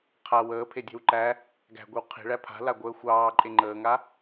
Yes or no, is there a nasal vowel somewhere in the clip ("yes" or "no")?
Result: no